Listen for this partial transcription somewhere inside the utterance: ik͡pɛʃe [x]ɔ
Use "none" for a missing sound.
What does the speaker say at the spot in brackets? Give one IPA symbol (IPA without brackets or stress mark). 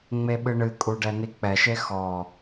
x